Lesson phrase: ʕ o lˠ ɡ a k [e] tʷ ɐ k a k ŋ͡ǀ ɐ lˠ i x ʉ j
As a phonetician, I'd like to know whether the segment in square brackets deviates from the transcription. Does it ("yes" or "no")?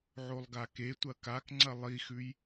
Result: no